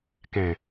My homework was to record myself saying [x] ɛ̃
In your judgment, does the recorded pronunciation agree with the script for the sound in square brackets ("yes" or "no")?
no